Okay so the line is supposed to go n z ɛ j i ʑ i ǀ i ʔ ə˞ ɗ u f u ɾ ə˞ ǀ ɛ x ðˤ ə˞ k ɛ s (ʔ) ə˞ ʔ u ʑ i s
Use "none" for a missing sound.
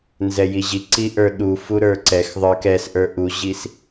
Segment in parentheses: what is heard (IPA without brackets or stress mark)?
ʔ